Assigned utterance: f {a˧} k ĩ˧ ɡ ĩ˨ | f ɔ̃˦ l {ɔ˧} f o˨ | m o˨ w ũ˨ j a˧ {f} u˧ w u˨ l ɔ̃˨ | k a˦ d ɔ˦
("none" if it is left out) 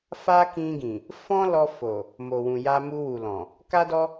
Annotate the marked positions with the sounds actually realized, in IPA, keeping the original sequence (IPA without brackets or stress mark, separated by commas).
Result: a˦, ɔ˧, m